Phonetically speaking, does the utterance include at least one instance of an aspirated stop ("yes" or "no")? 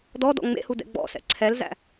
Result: yes